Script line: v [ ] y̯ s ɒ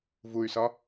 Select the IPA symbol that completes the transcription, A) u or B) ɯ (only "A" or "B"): A